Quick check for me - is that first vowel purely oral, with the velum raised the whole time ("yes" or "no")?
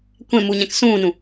no